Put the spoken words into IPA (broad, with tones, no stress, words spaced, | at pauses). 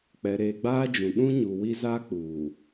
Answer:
k͡pɛ˨ɾeː˨ɡ͡baː˦d͡ʒũ˨ ɗũ˦ɲu˨ wi˦zaː˦k͡puː˨